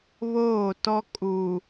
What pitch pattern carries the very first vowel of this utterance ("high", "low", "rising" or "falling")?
falling